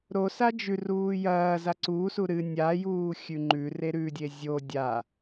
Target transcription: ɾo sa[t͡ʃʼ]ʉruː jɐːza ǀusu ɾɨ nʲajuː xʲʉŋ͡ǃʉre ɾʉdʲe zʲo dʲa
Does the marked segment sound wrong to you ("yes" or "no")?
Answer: yes